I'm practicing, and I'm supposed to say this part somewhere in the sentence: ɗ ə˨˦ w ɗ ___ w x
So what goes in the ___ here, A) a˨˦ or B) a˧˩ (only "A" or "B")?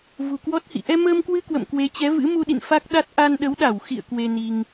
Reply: B